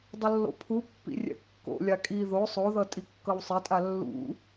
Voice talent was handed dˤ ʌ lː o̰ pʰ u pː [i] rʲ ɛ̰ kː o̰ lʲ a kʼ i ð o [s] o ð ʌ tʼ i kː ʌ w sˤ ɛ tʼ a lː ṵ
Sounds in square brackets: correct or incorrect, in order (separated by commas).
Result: incorrect, incorrect